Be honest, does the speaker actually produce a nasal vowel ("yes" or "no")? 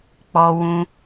yes